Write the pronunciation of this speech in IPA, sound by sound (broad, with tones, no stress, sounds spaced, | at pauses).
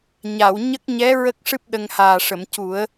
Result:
ɲ a˨˩˨ w ɲ ə˦˥ k̚ ɲ ɛ˧˥ ɹ ə˦˥ k̚ ʂ ɨ˦˥ p̚ ɗ ə˧ ŋ h aː˨˩ ʂ ə˨˩˨ m c u˨˩˦ ə̯